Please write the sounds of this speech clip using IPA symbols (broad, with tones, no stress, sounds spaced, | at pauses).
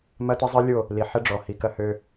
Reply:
m ɐ˦ t ɪ˦ zˤ i˦ lʲ o˦˨ | l i˨ ħ ɪ˦ ɖ͡ʐ ɔ˨ h i˨ k ɐ˦ h ø˦